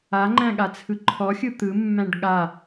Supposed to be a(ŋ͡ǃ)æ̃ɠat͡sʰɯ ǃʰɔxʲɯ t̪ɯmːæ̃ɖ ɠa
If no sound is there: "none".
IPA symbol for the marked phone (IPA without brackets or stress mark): ŋ͡ǃ